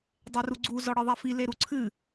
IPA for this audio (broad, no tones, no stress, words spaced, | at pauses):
dˤeruɡ͡ǀu zɔɽɨðˤɛfi leɾuǀʰɨ